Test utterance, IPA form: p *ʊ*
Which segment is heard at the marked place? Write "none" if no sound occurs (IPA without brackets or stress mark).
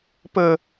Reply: ə